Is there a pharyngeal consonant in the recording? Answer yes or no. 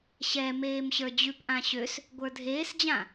no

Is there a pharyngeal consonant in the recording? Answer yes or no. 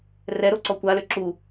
no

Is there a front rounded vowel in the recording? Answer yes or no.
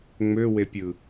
yes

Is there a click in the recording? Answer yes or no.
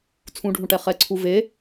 yes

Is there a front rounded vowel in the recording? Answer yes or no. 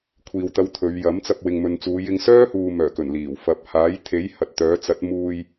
yes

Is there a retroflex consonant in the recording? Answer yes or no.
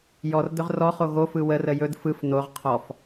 no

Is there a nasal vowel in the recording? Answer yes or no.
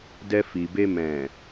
yes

